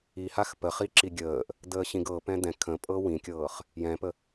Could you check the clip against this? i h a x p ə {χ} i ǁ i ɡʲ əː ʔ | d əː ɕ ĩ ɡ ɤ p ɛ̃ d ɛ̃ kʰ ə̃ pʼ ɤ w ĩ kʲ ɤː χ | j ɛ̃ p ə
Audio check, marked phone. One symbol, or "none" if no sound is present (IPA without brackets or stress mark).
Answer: χ